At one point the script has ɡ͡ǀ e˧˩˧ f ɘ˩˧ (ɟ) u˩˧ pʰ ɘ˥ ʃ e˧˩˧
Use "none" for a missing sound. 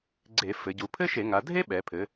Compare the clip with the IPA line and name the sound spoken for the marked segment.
ɟ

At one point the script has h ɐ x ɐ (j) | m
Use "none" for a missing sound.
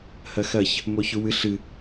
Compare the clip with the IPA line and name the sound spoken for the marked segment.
ç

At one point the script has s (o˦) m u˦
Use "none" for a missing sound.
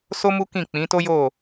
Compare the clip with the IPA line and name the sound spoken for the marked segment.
o˦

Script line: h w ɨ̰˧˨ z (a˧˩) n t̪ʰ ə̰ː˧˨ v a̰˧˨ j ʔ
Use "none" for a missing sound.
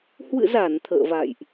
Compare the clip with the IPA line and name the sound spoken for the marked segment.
a˧˩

